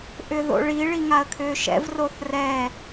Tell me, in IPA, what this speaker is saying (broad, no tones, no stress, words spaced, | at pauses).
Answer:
ʔʏðo̰ɭi ɭiŋaə̯kʰʏːʃɛ̰v roθrɛ